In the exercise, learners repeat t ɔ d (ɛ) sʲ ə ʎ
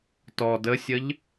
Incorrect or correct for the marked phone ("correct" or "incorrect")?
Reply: incorrect